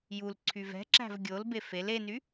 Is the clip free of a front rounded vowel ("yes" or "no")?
no